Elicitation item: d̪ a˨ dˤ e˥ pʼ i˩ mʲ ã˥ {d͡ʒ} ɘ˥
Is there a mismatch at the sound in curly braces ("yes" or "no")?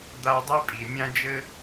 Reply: no